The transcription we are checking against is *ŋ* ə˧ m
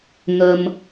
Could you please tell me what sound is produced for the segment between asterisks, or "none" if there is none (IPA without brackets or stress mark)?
ŋ